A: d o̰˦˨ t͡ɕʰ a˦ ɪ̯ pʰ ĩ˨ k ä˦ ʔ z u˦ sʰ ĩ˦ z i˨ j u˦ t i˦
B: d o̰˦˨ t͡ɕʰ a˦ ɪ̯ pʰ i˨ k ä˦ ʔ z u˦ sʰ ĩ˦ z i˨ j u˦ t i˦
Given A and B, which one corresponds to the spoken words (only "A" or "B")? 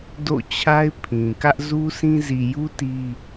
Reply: A